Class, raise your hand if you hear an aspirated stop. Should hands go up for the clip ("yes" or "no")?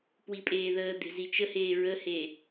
no